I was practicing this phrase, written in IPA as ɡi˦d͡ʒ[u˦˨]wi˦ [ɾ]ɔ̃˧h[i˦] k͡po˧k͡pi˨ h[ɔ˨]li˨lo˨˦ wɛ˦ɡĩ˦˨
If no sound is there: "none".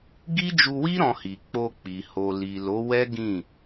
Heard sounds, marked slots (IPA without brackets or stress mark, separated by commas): u˧, ɾ, i˨, o˨